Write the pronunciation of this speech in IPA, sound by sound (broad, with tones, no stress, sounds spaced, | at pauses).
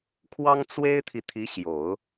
kʰ w ɑ˥ ŋ t͡s w e˥ ɪ̯ t̪ʰ i˨ t̪ʰ i˧˥ ɕ j o˨˩˦ ʊ̯